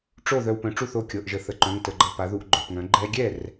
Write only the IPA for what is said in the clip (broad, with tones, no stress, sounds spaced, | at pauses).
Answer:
ʈ͡ʂ o˥˩ ð œ˧ w p œ̃˩˥ ʈ͡ʂ u˥˩ θ o˥˩ kʲ ɤ˩˧˩ ʔ ʒ ə˩˥ θ ə˩˧˩ ǃ œ̃˩˧˩ ŋ t ə˩˧˩ ɡ͡ǃ ɤ˧ p a˩˥ ð u˧ ʔ ɡ͡ǃ œ˩˧˩ p ŋ œ̃˩˥ ɡ͡ǃ ɛ˧ ɡʲ ɛ˥˩ r